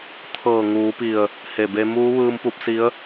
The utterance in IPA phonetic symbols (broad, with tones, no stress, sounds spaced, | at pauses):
t̪ʰ ɤː˧˩ ŋ uː˩˧ p i˧˩ ə̯ | h e˧˩ b e˧ m uː˧˥ ʋ ɯː˧ m p u˧ p̚ s i˧˥ ə̯